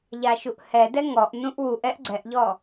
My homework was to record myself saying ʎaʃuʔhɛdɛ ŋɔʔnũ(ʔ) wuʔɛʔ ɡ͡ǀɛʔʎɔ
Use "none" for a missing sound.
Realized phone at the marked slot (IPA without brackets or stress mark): ʔ